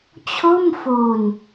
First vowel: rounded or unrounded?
rounded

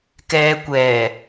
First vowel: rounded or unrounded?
unrounded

